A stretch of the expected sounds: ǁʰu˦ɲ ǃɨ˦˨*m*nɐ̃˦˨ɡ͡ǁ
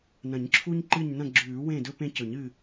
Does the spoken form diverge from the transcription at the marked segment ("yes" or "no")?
yes